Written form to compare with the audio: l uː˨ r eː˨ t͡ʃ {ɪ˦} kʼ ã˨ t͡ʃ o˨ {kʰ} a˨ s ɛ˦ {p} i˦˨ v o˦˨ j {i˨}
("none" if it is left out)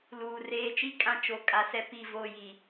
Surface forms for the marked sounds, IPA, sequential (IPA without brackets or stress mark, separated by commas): i˦, kʼ, p, i˨